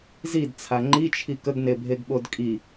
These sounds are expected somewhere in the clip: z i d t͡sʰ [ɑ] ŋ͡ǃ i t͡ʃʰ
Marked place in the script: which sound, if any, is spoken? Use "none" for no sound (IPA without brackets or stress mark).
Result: a